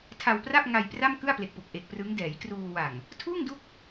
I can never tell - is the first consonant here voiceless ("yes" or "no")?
yes